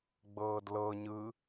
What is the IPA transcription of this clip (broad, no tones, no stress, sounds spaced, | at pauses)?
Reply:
ɡ͡b ɤː d l ɤ ɲ ɯ